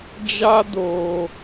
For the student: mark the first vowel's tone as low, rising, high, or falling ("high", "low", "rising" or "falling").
high